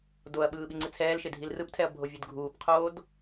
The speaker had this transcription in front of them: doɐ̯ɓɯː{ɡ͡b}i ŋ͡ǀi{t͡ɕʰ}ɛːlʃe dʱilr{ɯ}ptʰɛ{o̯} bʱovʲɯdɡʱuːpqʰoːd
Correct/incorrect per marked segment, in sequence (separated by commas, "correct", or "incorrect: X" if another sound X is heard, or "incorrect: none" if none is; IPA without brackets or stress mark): incorrect: ɓ, incorrect: t͡sʰ, correct, incorrect: ɐ̯